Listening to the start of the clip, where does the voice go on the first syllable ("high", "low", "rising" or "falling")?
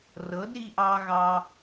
rising